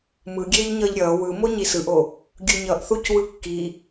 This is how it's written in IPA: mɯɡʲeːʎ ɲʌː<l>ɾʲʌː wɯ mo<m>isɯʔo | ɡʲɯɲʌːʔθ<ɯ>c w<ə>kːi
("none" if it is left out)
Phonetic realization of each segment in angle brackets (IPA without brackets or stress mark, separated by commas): ʎ, ɲ, u, ɯ